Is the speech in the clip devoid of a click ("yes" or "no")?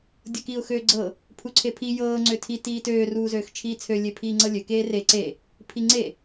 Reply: no